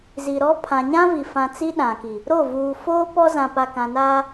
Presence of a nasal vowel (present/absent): present